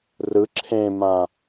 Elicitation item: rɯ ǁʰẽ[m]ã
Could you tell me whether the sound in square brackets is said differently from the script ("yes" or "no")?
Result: no